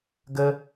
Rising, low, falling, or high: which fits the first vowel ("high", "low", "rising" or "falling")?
high